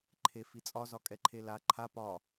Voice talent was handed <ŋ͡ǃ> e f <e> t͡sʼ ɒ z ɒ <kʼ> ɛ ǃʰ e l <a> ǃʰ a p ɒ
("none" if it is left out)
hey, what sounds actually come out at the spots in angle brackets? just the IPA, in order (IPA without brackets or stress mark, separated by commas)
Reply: ǃʰ, i, kʼ, a